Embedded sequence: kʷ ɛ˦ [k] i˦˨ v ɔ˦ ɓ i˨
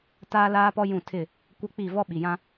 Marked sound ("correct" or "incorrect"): incorrect